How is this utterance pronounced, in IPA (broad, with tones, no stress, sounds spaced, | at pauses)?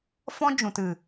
f ɔ̃˦ d͡ʒ ũ˨ t ɨ˨